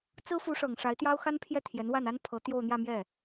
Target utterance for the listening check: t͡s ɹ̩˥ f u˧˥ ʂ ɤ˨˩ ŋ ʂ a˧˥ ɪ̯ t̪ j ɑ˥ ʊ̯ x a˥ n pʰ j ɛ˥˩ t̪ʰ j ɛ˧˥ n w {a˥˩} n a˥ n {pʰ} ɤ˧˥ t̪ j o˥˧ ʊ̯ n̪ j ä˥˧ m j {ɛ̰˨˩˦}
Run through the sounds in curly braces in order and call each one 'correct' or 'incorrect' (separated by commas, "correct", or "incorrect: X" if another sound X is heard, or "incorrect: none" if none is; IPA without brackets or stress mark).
correct, correct, incorrect: ɛ˥˩